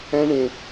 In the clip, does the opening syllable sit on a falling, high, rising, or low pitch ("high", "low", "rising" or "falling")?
high